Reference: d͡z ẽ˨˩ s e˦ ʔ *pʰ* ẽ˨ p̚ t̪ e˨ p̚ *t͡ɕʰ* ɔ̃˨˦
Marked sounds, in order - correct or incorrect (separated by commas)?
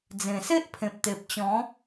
correct, incorrect